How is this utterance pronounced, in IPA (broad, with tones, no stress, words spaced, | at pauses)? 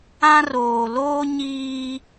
ã˦roː˨loː˦ ɲiː˦